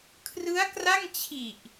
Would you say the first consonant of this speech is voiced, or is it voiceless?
voiceless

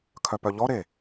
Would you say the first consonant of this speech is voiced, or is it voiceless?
voiceless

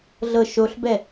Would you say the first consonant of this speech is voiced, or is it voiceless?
voiced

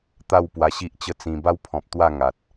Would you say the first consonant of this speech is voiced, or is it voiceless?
voiceless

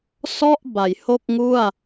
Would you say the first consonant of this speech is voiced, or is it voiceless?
voiceless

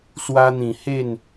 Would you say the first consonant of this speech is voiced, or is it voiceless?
voiceless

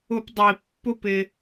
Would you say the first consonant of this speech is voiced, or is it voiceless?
voiceless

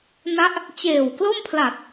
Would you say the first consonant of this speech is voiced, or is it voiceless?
voiced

